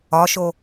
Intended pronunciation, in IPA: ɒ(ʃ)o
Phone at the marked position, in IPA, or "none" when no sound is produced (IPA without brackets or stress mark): ʃ